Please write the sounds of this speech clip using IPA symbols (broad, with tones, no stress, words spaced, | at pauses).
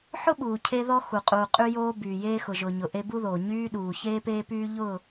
ħʊ˦ɓuː˨ cʰe˦ ðɔ˦ xu˨qʼuː˨ qʼy˦joː˦ byː˨jeː˦ xʊ˨ʒʊː˨ɲʊ˨ʔe˦ bu˦ðoː˨ ɲyː˦ɗuː˨ çeː˦peː˦pyː˦ ʎʊ˦˨